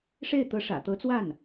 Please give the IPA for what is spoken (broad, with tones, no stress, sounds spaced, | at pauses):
ʂ e˥˩ ɪ̯ t̪ ɤ˧˥ ʂ ä̰˨˩ t̪ ɤ˧˥ t͡s w a˥˩ n